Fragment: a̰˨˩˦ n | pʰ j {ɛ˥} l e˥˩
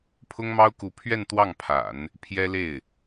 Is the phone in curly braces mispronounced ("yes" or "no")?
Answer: no